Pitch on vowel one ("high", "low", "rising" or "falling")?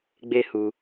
high